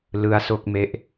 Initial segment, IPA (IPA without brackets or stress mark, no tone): l